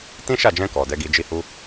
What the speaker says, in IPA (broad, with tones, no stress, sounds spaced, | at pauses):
t ĩ˦ ʃ a˦˨ d͡ʒ ɛ̃˧ k ɔ˨ d ɛ˨˦ ɡ i˧ d͡ʒ i˦ h u˦